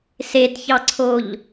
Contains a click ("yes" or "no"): yes